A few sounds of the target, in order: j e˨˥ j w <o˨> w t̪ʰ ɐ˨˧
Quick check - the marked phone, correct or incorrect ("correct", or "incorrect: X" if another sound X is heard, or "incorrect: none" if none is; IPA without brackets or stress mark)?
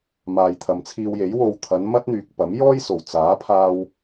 correct